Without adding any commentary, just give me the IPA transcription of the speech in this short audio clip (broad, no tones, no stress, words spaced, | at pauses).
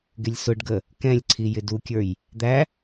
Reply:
ɡɪlʲsʊɖɡə | kɛ̃lʲǀʰi jɪdukʲə˞j | d̪æ